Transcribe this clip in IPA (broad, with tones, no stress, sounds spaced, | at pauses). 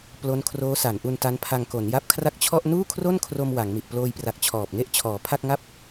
p l o˦˥ n kʰ r oː˦˥ s a˩˦ n ʔ u˧ n t a˦˥ n pʰ a˧ ŋ k o˩˦ n j a˦˥ p̚ kʰ r a˥˩ k̚ t͡ɕʰ ɔ˥˩ ʔ n uː˥˩ kʰ r o˥˩ n kʰ r o˧ m w a˩˦ ŋ m i˨˩ ʔ p l oː˧ j p r a˨˩ k̚ t͡ɕʰ ɔː˨˩ p̚ ŋ e˥˩ ʔ t͡ɕʰ ɔː˩˦ pʰ a˥˩ k̚ ŋ a˥˩ p̚